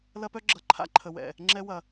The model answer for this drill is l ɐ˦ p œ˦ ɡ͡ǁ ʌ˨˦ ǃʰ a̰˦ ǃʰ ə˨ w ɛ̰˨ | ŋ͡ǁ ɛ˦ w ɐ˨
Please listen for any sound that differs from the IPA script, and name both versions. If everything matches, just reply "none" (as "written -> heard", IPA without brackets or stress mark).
none